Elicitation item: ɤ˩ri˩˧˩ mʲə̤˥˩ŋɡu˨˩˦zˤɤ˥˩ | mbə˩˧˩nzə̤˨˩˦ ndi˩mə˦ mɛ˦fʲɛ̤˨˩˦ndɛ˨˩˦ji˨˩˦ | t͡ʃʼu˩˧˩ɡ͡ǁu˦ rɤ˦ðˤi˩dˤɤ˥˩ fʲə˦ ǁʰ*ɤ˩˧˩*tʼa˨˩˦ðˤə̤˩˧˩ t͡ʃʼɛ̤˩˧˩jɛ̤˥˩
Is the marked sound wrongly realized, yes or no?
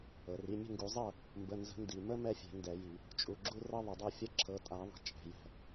no